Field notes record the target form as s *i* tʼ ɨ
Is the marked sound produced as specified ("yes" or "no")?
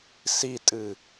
yes